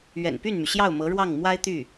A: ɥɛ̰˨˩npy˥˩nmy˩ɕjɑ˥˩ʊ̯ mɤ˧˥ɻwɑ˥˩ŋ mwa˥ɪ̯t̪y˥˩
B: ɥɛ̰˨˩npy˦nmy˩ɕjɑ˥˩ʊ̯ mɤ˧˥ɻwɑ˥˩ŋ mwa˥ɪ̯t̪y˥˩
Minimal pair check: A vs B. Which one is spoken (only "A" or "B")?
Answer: A